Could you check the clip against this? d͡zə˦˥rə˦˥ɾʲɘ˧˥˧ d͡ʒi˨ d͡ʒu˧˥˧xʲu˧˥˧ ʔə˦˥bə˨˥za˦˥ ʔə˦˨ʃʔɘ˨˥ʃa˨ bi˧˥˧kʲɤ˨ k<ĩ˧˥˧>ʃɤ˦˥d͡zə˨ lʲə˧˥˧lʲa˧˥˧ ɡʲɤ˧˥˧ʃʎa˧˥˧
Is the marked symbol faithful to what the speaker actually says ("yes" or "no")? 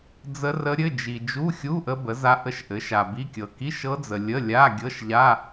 no